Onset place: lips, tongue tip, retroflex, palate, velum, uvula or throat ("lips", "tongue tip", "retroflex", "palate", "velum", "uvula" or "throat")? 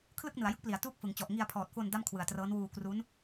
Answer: velum